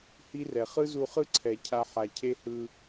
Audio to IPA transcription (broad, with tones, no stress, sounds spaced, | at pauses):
h i˦ r ɛ˨ χ ɯ˦ z u˧ χ ɯ˦ ǀʰ ɛ˨ cʰ a˧ ħ a˨ cʰ e˦ h ɯ˧